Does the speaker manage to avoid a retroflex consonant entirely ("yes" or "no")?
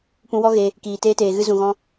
yes